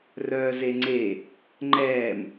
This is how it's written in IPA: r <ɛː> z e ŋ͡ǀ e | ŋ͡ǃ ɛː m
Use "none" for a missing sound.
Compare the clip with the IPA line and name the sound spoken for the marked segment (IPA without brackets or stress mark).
œː